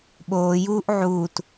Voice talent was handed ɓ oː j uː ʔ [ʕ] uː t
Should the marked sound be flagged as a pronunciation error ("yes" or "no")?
no